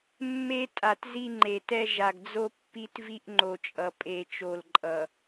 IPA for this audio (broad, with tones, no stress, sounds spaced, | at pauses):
mː e˦ tʼ a˨ t z i˦ ŋ͡ǃ e˨ t ɛ˦ ʒ a˨ ɡ d͡z o˦ pː i˦ t v i˦ ʔ ŋ͡ǃ o˨ t͡ʃʼ ʌ˨ pʼ e˨ t͡ʃ o˨ l ǃʼ ʌ˨